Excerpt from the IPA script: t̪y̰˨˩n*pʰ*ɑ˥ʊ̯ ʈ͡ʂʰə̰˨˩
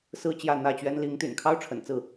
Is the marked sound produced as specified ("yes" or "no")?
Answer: no